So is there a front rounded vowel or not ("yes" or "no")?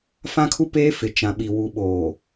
no